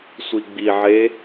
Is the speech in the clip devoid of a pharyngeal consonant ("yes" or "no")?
no